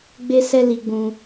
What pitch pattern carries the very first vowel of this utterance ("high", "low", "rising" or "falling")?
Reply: high